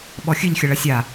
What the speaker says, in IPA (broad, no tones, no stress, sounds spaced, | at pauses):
ɓ ɔ xʲ ɨ ʎ xʲ ɐ ɭ ɐ sʲ a